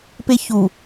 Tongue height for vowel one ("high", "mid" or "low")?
mid